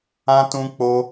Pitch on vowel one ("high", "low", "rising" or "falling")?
high